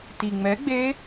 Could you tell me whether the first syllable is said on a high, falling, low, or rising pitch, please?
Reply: low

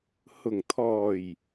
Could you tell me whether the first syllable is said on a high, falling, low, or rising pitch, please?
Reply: low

